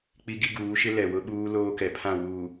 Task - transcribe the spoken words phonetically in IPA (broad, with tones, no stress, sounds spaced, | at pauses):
k͡p i˦ ɡ i˦ ɡ uː˨˦ ʃ ɪ˦ l ɛ˨ w ʊ˦ ɓ uː˦ l oː˦ k ɛ˨ pʰ ã˦˨ w uː˨